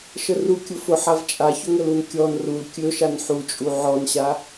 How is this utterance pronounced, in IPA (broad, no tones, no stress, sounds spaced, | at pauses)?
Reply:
ʃ ə r u kʲ ʊ f ʊ ħ a v t͡ʃʼ a ç ʊ ŋ ə l u n kʲ ɔ n r u l kʲ ɵ ʃ a n ħ u t͡ʃʼ u ʕ ɔ n ɕ a